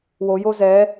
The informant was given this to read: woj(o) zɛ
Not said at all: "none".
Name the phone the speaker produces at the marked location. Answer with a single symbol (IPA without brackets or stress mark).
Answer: o